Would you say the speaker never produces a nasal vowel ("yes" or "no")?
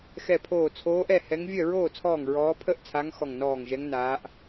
yes